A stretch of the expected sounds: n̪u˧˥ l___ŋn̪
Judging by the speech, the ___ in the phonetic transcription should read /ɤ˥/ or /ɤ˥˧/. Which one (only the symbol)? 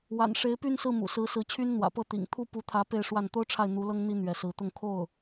ɤ˥